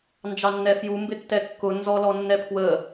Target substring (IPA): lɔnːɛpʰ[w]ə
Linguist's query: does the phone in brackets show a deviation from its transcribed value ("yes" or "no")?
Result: no